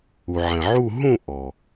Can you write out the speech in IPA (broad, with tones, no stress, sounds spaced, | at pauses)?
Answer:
u˩ ʕ ɛ̃˩ ʕ u˦˨ ɦ ũ˦˨ ʔ ɔ˩